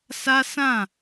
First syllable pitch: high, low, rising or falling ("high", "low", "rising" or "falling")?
high